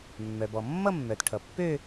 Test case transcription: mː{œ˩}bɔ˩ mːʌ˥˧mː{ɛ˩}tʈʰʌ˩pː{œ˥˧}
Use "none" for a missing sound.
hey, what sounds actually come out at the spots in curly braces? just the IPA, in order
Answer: œ˩, œ˩, ø˥˧

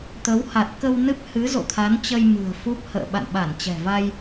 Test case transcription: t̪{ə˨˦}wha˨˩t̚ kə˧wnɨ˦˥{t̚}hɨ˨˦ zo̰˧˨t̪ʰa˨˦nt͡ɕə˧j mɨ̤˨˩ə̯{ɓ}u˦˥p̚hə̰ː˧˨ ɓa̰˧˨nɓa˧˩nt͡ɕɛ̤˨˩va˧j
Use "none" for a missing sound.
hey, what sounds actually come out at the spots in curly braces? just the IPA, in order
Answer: ə˨˦, p̚, f

